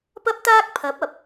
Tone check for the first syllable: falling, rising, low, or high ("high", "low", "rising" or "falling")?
high